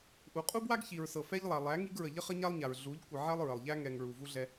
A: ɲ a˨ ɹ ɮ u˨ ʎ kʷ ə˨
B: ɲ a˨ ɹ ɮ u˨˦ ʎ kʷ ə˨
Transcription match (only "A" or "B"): B